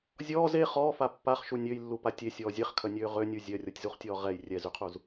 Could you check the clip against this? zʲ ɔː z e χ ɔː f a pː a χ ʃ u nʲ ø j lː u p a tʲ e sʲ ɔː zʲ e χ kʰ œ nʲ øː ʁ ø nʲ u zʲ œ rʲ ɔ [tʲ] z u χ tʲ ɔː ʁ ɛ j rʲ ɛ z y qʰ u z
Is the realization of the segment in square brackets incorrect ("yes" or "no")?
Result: no